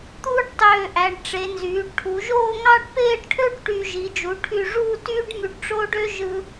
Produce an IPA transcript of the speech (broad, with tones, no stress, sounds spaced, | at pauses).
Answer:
t̪ uː˥ ɖ tˤ øː˧˩ ʔ æ˩˧ ɖ ʈ͡ʂ e˩˧ n z yː˩˧ ɖ ʈʰ u˩˧ ʒ oː˥˧ ŋ ɑ˥˧ ɖ p eː˥˧ ɖ ʈʰ ø˥ ɖ ʈ y˧ ʒ i˩˧ d͡ʒ u˩˧ ʈʰ y˧˩ ʐ uː˥˧ t yː˥ ɖ m y˧ ɖ ʈ͡ʂ oː˥ ɖ ø˥ ʒ ɯ˧